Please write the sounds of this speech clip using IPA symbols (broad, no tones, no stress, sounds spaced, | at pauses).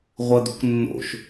ʁʷ ɐ d̪ ṳ k nː o̰ ʃ